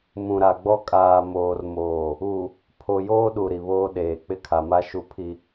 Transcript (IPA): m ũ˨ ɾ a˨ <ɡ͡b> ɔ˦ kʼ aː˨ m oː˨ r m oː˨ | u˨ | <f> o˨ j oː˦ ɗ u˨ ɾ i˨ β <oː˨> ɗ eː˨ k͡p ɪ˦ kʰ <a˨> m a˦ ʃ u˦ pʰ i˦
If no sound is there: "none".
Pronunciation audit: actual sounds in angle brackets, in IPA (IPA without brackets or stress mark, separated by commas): ɡ͡b, pʰ, oː˦, a˨